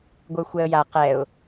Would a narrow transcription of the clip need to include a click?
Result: no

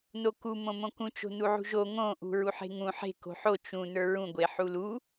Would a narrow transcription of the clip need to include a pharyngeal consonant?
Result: yes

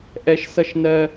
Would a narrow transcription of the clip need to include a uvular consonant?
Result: no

